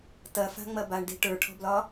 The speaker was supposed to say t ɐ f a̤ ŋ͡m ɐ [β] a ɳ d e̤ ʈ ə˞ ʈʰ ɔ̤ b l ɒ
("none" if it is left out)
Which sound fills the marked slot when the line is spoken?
b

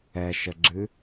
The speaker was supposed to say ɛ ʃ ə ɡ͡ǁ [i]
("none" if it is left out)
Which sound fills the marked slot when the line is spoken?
ɨ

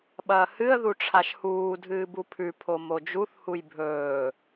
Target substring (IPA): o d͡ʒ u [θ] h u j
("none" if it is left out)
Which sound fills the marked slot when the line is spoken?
θ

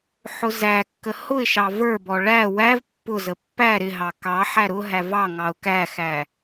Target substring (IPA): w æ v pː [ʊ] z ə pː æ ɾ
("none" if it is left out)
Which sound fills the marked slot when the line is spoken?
ʊ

